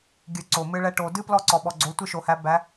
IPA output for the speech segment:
ɡʲ ɨ˩˧ ǀ o˩ m ɨ˧ ɭ ɛ˧ ʈ o˩ d ɨ˥ p l ɔ˧˥ ǀ ɔ˩ ɓ ɔ˩ ɡ͡ǀ o˩˧ tʷ ɨ˧ ʃ o˩ h æ˩˧ b æ˩˧

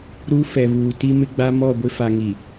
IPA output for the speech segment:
ɾ u˦ f ɛ˨ β uː˨ t i˦ m ɪ˦ ɡ͡b a˦ m ɔ˦˨ ɡʷ ɪ˦ f a˨ ŋ i˨

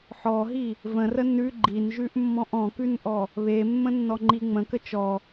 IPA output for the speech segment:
ħ ɔ ɦ i | v ə̃ r ə n ʉ ɡ͡ǃ i n ʒ ʉ ʔ mː ɔ̃ ʔ ɔ̃ k ʉ n ʔ ɔ | β e mː ə̃ nː ɔ ŋ͡ǃ i ŋ͡m ə̃ k ə t͡ʃ ɔ

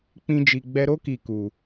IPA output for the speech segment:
k͡p ĩ˦ d͡ʒ i˧ ɡ͡b ɛ˦ ɾ o˦ k i˧ k u˧

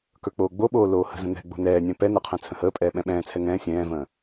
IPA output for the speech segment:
k ə˞ k͡p oː ɡ͡b o ɓ oː l oː h ə̤ z ə̃ n̪ ɛ̤ ɡ͡b o̤ n ɛː nʲ ɛ̃ p ɛ n ə qʰ ɛ̃ t͡sʰ ə̃ h əː pʼ ɛː ɓ ɛ̃ ɓ ɛ̃ː t͡sʰ ɛ ŋ ɛ̃ː sʲ ɛ̃ː v ə̃ː

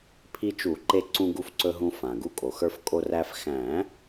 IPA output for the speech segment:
pʰ i˧ t͡ʃ u˨˩˦ ǃ e˧ ǀ ũ˧ ɡ u˧ f ǀ ɵ˧ ɦ ũ˧ f ã˩ ɡ u˧ kʼ o˩ x ə˞˧ f kʼ o˧ r æ˧ f x æ̃˨˩˦

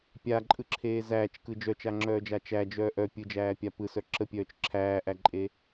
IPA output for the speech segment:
pʲ a ǃʼ ɯ ǁʰ eː z æː t͡ʃ k ɯ d͡ʒ œ t͡ʃ a ŋ͡ǁ œː d͡ʒ a t͡ʃ æ d͡ʒ œː ʔ œ pʲ ɯ d͡ʒ æː pʲ a p ɯ s œ ǁ ə pʲ œː t͡ʃ ǁʰ æː ʔ æ ǃʼ e

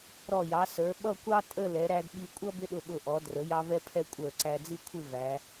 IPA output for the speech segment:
ɾ ɔ˧˩ j ɑ˩˧ s ə˞˩˧ ɓ ʌ˥˧ kʷ ɑ˥ tʼ ə˥˧ l ɛ˩˧ ɾ æ˧ d ɓ i˧ kʷʼ ʌ˥ b ɪ˥ ɗ ʊ˧ ɓ ʊ˧˩ ʔ ɔ˩˧ d r ə˩˧ j ɑ˧ v ɛ˧ pʰ ɛ˧ kʷʼ ə˞˧˩ ǀ æ˧ d͡z i˥ kʷʰ ɪ˥˧ v æ˩˧

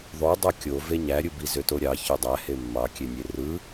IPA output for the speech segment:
ðˤ o dˤ o kʲ o v e ɲ æ ɾʲ ɯ b i z ø t o ɾʲ ɑ ç ø dˤ æ h e mː ɑ kʲ e nʲ e r ɯ

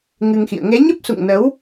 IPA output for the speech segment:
ŋ ɨ˧ ŋ x ḭ˧˨ ə̯ ŋ e˨˦ ɲ ə˦˥ p̚ s ṵ˧˨ ŋ n ə˨˦ w

